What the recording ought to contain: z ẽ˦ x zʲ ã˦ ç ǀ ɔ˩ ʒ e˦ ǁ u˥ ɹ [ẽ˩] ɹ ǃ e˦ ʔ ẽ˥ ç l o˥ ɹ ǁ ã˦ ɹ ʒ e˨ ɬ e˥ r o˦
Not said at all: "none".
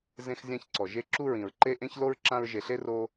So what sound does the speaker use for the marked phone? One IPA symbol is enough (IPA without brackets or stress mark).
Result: ĩ˩